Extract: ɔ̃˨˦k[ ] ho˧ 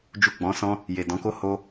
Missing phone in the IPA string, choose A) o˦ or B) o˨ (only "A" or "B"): A